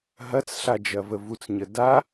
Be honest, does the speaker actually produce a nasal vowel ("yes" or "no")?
no